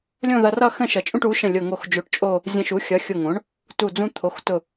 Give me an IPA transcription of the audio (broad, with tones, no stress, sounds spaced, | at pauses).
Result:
lʲ õ˥˧ ð ʌ˧ r ʌ˥˧ x ə̃˥˧ ʃ ʌ˩˥ t͡ʃʼ ũ˥˧ ʈ u˩˥ ʃ ə̃˧˩ lʲ ʊ˧˩ ŋ o˧˩ x d͡ʒ o˧ ʈ t͡ʃʼ o˥˧ | zʲ ə̃˧ ʃ u˩˥ xʲ ʌ˩˥ xʲ ʊ˧˩ ŋ õ˩˥ ɳ | t u˧˩ d͡z ũ˧ t̪ʰ o˩˥ x t ʊ˧˩